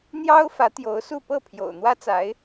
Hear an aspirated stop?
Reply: yes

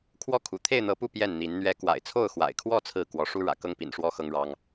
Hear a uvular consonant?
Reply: no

